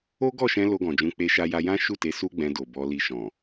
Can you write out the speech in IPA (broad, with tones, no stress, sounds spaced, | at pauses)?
o˦ ɡ ɔ˦˨ ʃ ɛ̃˧ l o˧ ɡ ɔ̃˨ d͡ʒ ũ˨˦ k͡p e˧ ʃ a˧ j a˧ j ã˦ ʃ u˦˨ t e˨˦ s u˦ ɡ͡b ɛ̃˧ d o˨ b ɔ˧ l i˧ ʃ ɔ̃˨